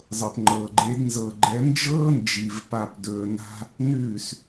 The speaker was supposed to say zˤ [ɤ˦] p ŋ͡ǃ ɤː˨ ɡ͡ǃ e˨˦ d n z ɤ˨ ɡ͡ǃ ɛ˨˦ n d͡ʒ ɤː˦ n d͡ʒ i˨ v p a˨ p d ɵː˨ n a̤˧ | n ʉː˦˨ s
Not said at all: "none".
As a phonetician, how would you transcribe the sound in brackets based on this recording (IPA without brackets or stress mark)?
ɤ˨